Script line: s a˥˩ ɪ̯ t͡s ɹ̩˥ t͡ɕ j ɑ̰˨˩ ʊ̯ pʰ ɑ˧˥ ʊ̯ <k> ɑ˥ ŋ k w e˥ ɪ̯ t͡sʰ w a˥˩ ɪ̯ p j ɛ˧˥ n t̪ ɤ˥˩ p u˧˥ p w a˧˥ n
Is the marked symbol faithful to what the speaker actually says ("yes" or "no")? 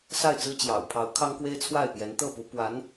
no